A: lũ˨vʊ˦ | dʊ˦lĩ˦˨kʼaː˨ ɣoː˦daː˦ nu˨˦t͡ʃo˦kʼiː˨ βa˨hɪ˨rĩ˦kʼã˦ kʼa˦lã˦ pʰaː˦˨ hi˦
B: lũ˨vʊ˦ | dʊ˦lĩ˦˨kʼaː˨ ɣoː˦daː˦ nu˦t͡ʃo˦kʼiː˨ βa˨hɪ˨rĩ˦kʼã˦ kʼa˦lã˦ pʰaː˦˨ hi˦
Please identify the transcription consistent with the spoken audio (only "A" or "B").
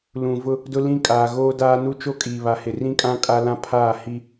B